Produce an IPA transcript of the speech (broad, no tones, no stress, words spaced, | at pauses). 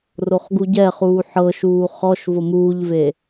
roχɡuɟɛχuː ħɤʃuː χɔʃ vomuːʎve